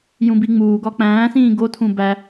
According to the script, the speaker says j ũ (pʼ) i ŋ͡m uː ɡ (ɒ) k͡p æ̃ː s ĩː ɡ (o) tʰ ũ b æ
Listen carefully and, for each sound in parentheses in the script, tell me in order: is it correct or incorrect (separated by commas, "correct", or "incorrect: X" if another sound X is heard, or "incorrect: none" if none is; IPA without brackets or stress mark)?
incorrect: b, correct, correct